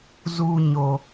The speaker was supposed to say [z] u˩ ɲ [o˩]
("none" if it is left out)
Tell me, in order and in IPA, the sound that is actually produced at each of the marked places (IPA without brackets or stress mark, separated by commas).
z, o˩